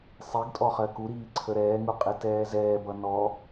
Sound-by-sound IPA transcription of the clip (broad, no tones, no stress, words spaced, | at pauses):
sˤiɡtʼɔχɜ kuɾiːǀʰə ɾɛːŋuqʼitɛː zɛːbʌ nɔ